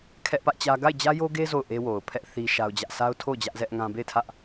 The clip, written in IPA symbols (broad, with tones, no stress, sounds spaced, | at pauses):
kʰ ɛ˦ ʔ p ä˦ ʔ t͡ɕ ä˦ ɡ a˦˨ ɪ̯ d͡ʑ ä˦ j o˦ ɡ e˦ z o˦˨ ʊ̯ ʔ e˦ w o˨ ʊ̯ pʰ ɛ˦ ʔ θ i˦ ʃ a˦ ʊ̯ d͡ʑ ä˦ ʔ sʰ a˦ ʊ̯ tʰ o˦˨ ʊ̯ d͡ʑ ä˦ ʔ z ɛ˦ ʔ ŋ ã˦ b e˦˨ ɪ̯ tʰ ä˦ ʔ